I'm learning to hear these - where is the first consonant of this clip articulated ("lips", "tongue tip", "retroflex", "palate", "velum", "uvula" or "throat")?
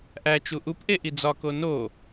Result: throat